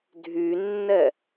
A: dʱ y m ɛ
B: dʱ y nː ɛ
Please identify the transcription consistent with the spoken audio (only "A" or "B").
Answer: B